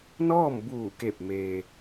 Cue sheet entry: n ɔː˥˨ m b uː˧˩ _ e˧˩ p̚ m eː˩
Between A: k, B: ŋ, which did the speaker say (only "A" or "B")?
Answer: A